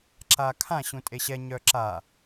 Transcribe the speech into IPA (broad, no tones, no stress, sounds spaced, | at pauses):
ǁ a kʰ ã ɕ ũ tʼ e ɕ ɛ ɲ œ ǁ a